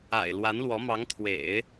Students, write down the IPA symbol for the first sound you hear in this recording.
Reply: a̰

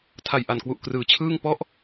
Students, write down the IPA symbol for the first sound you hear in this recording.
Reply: tʰ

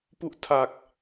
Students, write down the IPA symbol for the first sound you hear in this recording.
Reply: p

